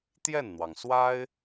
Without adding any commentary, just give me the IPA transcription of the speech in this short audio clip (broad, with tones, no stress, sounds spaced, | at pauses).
t̪ j ɛ˥˩ n n̪ w ɑ˩ ŋ s w a˥ ɪ̯